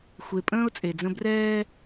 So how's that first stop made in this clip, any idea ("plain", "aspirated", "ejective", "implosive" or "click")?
ejective